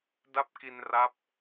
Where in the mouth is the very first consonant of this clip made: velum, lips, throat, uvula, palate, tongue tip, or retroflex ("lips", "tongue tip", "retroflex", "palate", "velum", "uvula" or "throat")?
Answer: tongue tip